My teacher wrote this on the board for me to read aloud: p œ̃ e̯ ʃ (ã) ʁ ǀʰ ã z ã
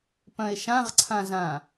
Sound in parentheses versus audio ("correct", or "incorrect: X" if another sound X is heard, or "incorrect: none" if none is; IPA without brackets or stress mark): correct